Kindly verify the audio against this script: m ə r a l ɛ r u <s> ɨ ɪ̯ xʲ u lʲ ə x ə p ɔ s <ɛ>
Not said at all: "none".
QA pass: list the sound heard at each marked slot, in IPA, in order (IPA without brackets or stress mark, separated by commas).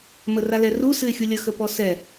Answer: s, ɛ